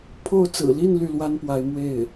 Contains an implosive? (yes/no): no